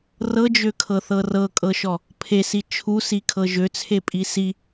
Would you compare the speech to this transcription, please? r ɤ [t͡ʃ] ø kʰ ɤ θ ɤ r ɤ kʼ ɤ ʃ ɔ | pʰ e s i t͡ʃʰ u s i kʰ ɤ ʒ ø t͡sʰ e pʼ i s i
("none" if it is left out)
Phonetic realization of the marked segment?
d͡ʒ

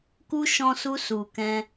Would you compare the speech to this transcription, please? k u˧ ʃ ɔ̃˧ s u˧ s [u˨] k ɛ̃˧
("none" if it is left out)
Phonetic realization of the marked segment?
u˨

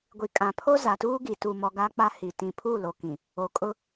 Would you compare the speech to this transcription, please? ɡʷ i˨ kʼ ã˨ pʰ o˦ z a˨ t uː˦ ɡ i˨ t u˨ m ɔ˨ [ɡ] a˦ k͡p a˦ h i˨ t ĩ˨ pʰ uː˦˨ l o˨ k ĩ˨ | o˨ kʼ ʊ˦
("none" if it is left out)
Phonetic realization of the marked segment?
ɡ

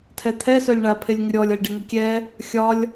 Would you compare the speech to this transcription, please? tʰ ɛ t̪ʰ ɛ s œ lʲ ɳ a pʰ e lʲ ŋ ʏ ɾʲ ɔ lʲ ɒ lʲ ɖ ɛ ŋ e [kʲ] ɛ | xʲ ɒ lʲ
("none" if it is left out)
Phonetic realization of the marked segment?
kʲ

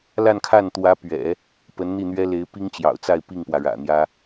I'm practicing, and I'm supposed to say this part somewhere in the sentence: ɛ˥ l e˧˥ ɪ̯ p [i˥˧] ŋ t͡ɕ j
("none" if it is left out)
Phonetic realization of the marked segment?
i˥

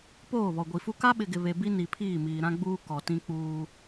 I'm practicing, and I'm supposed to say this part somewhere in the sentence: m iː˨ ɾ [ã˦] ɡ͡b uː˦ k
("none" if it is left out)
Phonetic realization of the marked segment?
ã˦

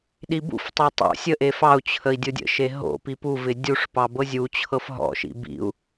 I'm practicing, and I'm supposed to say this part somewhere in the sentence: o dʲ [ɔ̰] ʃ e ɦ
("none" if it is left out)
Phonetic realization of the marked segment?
ə̰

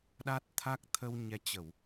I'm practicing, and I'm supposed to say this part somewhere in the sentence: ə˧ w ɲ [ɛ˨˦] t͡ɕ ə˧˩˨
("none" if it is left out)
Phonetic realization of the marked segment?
ɛ˨˦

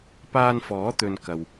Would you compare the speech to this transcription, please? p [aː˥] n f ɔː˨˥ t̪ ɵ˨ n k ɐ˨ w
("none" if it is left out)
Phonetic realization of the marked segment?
aː˧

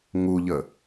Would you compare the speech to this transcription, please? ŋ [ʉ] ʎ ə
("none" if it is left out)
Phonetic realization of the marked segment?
u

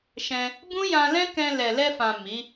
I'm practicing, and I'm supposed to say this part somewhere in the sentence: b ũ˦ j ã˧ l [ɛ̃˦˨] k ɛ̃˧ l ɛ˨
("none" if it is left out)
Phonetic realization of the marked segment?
ɛ̃˦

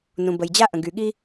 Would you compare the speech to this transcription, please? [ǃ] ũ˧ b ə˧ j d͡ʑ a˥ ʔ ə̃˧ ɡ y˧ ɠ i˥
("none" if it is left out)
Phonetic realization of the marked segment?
n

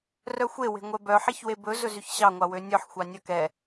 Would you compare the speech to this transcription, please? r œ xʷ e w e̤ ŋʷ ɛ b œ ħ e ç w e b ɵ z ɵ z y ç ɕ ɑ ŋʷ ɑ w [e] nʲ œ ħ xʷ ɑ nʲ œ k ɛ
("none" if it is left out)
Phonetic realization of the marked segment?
ø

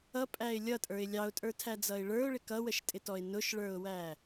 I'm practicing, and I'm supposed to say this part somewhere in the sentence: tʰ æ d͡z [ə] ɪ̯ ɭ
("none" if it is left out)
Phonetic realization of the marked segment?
ʌ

